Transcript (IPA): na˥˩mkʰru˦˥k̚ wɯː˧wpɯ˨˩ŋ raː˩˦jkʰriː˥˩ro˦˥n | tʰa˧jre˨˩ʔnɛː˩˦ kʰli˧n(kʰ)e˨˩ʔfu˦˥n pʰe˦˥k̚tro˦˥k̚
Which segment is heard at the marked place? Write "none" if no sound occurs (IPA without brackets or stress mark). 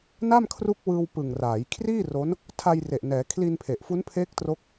pʰ